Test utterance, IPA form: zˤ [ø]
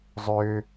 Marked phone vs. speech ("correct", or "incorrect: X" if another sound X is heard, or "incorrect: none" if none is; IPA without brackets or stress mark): correct